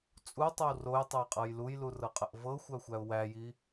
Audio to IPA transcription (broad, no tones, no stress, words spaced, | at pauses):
t͡sʼutˤəw rojtˤoɪ̯qʼɤj lujlurɤqʼəʔ vɤxʷæxʷæʊ̯ wæji